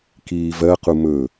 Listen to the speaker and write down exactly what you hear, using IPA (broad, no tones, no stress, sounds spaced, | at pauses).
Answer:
k iː v ɜ q u m ɵ